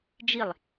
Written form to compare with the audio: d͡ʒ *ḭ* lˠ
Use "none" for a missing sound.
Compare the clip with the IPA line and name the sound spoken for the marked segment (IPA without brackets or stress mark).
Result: i